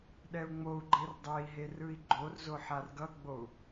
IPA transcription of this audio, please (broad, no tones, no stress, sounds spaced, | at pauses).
ɗ ɛ u̯ ŋ͡m o u̯ ɡ͡ǃ e r dˤ e i̯ ɦ e r ɯ i̯ ɡ͡ǃ o r z o ħ a r ɡ ʌ ɡ͡b o u̯